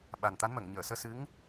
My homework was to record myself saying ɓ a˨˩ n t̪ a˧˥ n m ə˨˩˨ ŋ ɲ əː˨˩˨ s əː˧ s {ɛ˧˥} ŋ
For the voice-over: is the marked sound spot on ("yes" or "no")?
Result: no